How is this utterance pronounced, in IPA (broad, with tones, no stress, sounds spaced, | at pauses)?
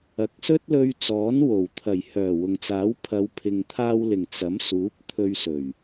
ɐ˨ k̚ s ɵ˥ t̚ l ɵ˧ ɥ t͡s ɔː˨˥ n w o˨˩ w t̪ʰ ɐ˨˩ j h œː˨˩ w ʊ˨ ŋ t͡s aː˨˥ w pʰ ɐ˨˧ w pʰ ɪ˨ ŋ t̪ʰ aː˧ w l ɪ˨˩ ŋ t͡s ɐ˨˥ m s uː˨˥ p̚ t̪ʰ ɵ˧ ɥ s ɵ˨˩ ɥ